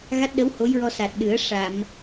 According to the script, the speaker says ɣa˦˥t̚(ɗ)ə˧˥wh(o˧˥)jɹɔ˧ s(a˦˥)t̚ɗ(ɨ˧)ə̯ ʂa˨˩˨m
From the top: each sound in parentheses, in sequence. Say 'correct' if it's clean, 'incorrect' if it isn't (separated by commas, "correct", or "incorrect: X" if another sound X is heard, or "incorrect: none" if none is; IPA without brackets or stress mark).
correct, correct, incorrect: a˨˩, incorrect: ɨ˨˩˦